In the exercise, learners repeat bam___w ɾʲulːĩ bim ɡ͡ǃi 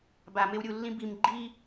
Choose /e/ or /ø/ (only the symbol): e